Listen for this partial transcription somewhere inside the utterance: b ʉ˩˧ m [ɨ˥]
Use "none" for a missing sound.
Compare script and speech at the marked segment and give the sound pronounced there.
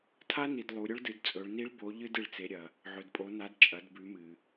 ɨ˩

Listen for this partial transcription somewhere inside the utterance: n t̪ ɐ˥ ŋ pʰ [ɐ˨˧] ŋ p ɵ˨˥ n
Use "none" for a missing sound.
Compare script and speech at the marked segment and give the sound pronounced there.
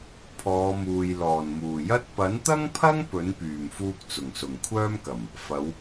ɐ˥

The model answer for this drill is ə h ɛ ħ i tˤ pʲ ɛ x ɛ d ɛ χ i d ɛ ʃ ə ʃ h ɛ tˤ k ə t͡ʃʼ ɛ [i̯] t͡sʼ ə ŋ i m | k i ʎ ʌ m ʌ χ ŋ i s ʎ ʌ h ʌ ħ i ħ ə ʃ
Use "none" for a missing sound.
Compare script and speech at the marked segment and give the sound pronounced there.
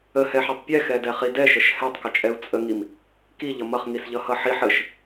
u̯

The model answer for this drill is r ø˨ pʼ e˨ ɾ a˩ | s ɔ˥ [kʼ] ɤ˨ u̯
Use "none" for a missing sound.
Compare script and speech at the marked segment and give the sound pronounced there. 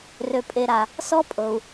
pʼ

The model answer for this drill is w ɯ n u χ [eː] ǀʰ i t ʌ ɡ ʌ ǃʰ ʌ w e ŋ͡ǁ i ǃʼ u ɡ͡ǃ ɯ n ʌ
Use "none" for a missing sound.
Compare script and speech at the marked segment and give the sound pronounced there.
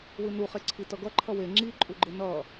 e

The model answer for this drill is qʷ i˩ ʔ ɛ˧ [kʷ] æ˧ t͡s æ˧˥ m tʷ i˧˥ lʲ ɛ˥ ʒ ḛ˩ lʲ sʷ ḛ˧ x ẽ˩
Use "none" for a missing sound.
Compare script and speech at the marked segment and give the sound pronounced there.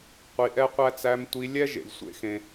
qʷ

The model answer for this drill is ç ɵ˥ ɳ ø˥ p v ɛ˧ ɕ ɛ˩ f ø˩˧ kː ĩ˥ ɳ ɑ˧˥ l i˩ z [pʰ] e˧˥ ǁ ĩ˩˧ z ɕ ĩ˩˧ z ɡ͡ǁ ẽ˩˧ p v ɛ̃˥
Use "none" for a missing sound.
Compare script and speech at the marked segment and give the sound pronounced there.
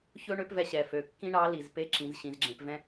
p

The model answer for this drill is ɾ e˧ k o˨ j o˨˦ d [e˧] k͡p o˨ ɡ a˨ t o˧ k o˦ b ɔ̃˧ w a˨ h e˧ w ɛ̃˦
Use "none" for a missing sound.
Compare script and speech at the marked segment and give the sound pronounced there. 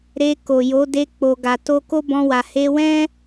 e˧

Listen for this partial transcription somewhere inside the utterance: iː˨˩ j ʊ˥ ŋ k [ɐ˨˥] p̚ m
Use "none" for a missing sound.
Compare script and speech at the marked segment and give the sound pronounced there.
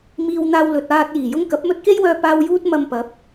ɐ˨˥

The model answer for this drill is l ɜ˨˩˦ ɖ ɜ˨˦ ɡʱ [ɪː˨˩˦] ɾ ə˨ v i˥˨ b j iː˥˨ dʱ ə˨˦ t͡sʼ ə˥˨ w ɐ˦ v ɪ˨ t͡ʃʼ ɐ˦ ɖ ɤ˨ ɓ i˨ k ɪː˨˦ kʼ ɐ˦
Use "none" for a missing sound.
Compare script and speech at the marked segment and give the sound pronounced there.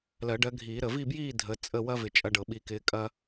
iː˨˩˦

